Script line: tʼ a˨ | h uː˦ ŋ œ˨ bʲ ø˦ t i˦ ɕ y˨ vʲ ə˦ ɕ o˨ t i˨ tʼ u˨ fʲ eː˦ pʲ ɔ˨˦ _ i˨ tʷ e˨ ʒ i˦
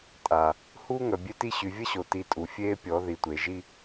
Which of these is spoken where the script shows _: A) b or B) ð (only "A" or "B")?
B